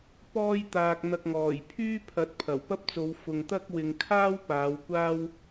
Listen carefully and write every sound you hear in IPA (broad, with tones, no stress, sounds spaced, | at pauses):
p ɔː˥ j t̪ aː˧ k̚ n̪ ɐ˧ k̚ ŋ ɔː˨˩ j pʰ yː˥ pʰ ɐ˨˥ t̚ pʰ ɐ˨˩ w p ɐ˥ p̚ t͡s o˨˧ w f ʊ˨ ŋ t̪ ɐ˥ k̚ w ɪ˨ ŋ kʰ aː˥ w p aː˨˧ w kʷ aː˥ w